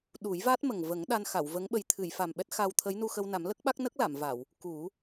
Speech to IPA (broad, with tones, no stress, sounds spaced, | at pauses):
ɗ u˨˩˦ j v a˦˥ t̚ m ə˨˩ ŋ v ə˨˩˦ ŋ ɗ a˧ n x a˨˩˨ w v ə˧˥ ŋ ɓ ə˨˩ j t̪ʰ ɨ˨˩˨ j f a˨˩ m ɓ ɛ˦˥ t̚ x a˧ w t̪ʰ ə˧˥ j n u˧ x ə˧ w n a˨˩˦ m l ə˦˥ k̚ ɓ a˦˥ k̚ n ə˦˥ k̚ l a˨˩˨ m v a˨˩˨ w | k u˨˩˦